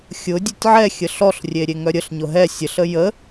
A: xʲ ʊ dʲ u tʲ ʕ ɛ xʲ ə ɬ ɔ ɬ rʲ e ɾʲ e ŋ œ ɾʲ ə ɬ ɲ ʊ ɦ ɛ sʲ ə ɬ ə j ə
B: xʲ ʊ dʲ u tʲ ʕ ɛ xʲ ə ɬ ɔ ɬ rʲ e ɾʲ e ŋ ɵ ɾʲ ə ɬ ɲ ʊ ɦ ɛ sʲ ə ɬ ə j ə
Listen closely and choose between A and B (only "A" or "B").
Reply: A